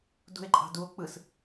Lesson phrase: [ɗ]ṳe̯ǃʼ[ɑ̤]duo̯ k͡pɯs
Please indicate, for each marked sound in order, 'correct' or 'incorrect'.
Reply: incorrect: d, correct

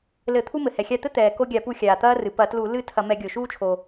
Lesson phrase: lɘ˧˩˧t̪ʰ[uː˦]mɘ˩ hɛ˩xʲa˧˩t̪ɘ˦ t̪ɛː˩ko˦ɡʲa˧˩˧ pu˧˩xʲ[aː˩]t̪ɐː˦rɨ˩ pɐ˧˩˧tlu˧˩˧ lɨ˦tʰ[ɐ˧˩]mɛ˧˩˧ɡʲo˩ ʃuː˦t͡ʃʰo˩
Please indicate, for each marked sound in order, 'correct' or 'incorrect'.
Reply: incorrect: u˦, correct, incorrect: ɐ˧˩˧

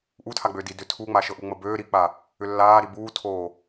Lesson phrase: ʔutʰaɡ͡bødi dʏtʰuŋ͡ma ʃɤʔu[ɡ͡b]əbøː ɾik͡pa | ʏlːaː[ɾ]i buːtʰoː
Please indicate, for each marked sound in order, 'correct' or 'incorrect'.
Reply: incorrect: ŋ͡m, correct

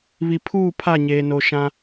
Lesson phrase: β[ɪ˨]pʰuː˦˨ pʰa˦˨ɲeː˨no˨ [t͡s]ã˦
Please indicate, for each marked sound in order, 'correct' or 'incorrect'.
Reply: incorrect: i˨, incorrect: ʃ

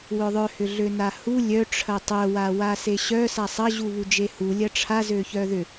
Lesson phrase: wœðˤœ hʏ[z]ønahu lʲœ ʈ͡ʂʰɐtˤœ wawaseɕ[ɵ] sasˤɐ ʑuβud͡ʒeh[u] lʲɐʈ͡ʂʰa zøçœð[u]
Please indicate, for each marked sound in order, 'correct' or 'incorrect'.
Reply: incorrect: ɮ, incorrect: œ, correct, incorrect: ʏ

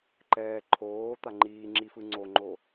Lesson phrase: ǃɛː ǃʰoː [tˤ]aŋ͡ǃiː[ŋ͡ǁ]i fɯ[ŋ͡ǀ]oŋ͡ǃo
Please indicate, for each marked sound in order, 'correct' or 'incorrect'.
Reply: incorrect: t̪, correct, correct

